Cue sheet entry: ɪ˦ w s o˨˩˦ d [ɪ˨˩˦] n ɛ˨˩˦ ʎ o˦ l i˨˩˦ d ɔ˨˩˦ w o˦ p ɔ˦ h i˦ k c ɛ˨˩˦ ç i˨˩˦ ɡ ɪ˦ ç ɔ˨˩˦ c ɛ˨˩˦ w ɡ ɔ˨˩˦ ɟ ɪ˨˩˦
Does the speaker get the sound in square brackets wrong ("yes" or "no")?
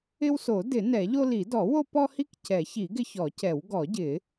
no